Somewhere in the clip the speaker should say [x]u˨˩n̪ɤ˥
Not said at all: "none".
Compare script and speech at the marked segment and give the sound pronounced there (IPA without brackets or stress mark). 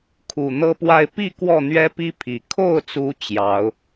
kʰ